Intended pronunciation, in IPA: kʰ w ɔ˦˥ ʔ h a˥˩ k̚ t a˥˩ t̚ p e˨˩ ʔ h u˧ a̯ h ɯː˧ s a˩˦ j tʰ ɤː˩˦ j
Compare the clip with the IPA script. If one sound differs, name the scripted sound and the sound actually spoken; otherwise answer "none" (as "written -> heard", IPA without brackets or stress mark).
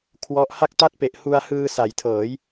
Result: none